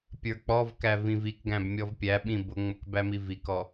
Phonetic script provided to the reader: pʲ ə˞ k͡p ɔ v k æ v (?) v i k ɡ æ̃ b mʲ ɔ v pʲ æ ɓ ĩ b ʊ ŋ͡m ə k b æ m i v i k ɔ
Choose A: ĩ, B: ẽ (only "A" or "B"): A